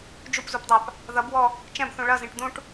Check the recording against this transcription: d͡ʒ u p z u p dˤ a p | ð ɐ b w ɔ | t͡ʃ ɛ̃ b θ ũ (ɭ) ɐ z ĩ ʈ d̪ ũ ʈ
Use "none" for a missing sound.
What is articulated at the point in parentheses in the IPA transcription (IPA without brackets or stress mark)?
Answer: ɭ